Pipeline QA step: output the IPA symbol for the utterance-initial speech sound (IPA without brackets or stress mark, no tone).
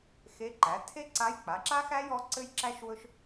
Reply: x